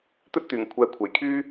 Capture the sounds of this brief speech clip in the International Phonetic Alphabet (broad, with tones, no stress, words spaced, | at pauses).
t̪ɵ˥t̚ t̪yː˨˩ŋkʷʰɛː˨ kʷʰe˨˩jkʰyː˥